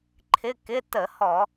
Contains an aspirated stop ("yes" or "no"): yes